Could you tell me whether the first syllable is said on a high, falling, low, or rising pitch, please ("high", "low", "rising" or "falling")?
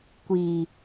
low